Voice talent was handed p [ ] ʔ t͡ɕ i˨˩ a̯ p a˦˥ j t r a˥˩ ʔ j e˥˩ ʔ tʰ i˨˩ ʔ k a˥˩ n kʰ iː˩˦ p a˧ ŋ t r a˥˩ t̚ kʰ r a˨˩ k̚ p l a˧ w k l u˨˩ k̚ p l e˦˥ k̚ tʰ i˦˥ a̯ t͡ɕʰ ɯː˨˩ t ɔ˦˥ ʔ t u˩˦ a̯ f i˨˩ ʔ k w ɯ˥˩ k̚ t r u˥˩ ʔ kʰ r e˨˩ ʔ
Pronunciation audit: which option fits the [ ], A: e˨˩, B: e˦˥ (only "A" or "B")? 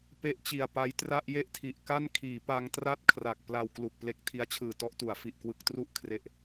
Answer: B